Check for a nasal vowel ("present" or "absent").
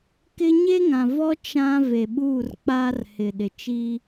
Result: present